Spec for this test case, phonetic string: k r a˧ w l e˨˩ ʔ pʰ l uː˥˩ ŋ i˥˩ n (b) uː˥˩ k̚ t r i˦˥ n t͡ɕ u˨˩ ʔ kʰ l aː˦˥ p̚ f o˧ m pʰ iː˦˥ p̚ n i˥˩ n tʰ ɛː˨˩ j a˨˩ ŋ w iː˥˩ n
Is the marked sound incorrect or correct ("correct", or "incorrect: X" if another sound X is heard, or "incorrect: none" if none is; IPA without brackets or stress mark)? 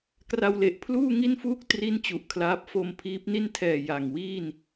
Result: incorrect: f